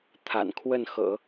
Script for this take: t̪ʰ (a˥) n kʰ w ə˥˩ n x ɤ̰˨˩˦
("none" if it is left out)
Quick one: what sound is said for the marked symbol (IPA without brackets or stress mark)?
a̰˨˩